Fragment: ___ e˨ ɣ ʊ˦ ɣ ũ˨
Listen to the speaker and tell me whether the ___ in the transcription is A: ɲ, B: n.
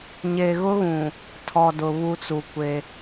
A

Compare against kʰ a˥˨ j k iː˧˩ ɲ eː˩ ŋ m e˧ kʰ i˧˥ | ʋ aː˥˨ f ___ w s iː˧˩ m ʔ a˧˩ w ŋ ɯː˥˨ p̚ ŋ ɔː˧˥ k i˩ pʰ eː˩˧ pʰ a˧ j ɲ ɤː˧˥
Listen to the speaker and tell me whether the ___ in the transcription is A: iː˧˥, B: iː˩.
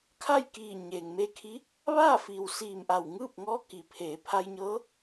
B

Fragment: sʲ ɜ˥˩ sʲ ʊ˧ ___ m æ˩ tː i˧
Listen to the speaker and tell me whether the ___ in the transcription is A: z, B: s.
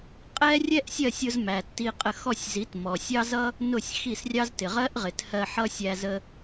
A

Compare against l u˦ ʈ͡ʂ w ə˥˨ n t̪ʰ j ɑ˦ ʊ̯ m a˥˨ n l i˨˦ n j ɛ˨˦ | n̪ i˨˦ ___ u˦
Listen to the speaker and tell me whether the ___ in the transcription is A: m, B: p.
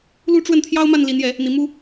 A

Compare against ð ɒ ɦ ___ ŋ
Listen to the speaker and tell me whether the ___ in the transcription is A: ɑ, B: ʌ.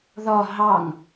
A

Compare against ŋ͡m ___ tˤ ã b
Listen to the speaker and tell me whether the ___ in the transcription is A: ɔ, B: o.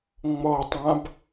A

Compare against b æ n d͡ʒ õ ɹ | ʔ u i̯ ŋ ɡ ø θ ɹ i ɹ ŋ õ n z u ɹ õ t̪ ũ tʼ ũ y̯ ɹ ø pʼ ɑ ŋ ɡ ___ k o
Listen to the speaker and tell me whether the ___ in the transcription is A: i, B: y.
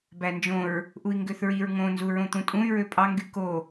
B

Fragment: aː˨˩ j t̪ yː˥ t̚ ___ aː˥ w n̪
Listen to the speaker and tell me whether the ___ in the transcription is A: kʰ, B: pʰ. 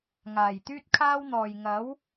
A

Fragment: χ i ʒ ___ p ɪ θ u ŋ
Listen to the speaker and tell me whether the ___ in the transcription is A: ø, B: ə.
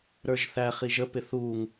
B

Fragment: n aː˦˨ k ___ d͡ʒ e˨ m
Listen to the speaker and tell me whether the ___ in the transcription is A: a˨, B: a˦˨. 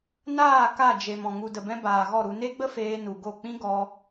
B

